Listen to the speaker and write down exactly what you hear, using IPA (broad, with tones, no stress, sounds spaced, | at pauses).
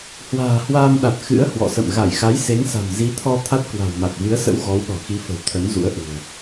h w a̤ː˨˩ h w aː˧ m ɗ a˨˩ t̚ x ɨ̰˧˥ ə̯ h w ɔ̰˧˨ s ə̰˧˨ m ɣ a˧˩ j x a˨˦ j s e˨˦ ŋ s a̤˨˩ m z i˨˦ t̪ʰ ɔ˧ t̪ʰ a˦˥ t̚ k w a̤˨˩ w m a˨˩ t̚ v ɨ˨˦ ə̯ s ə̰˧˥ w ɣ ɔ˨˦ w ɗ ɔ̤˨˩ x i˨˦ f ə̤˨˩ w t̪ʰ ə˨˦ n z ṵ˧˥ ə̯ ʔ ṳ˨˩ ə̯